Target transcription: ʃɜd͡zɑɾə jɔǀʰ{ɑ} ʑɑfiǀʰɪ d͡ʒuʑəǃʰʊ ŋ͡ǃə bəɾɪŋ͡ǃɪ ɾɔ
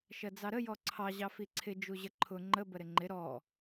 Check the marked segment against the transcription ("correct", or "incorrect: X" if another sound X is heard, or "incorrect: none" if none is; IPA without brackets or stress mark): correct